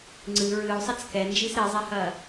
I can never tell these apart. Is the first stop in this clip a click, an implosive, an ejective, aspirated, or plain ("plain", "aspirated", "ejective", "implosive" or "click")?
click